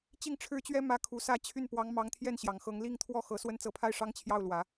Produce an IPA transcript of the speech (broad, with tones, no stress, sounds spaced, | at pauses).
t͡ɕ i˥˩ ŋ ʈ͡ʂʰ ɻ̩˥ t͡ɕ ɥ ɛ˥ m ä˥ kʰ u˧˥ s ä˥˧ t͡ɕʰ y˥˩ n p w ɑ˧˥ ŋ m ɑ˧˥ ŋ t̪ʰ j ɛ˥˩ n ɕ j ɑ˨˩ ŋ x ɤ˧˥ ŋ l i˥˧ ŋ t̪ʰ w ɔ˥˩ x ɤ˨˩ s w ə˥ n t͡s ɤ˧˥ pʰ a˥˩ ɪ̯ ʂ ɑ˥ ŋ t͡ɕʰ j ɑ˥˩ ʊ̯ l w ä˨˩˦